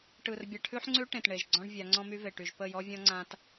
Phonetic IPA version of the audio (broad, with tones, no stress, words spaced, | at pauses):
ʈɯ˨r bʲa˨ʈʰʉ˦ħŋ͡ǀʉ˦ ʈẽ˨tɳe˨ʒ ɡ͡ǀɔ̃˦ɳvʲa˨˦ŋ͡ǀɔ̃˦my˦ ve˨ʈy˨ʒ pə˦˨jɔ˦vʲɔ̃˦ŋ͡ǀã˦t